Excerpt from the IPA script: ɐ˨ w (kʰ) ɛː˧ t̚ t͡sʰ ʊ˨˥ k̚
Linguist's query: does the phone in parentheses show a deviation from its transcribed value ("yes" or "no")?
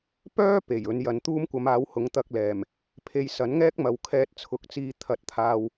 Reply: no